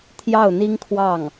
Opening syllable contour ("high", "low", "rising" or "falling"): falling